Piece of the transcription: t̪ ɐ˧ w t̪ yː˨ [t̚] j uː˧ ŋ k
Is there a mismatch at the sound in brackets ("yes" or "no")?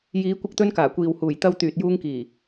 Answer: no